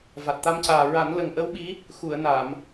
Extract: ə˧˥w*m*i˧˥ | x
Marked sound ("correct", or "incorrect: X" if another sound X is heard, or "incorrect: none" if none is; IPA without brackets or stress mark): incorrect: ɓ